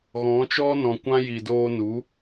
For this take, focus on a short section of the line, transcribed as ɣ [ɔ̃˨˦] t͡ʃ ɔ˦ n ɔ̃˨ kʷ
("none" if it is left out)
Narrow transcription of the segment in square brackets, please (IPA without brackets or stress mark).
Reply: ɔ̃˨˦